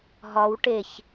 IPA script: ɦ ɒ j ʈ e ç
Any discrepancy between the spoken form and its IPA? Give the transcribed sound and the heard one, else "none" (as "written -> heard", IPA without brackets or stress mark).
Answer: j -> w